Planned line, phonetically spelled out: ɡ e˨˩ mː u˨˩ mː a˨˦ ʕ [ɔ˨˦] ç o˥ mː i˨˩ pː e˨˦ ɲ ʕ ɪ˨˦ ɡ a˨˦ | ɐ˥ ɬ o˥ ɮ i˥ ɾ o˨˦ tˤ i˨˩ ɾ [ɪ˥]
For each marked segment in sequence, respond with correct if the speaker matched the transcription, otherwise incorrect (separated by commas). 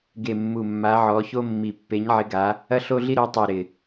correct, incorrect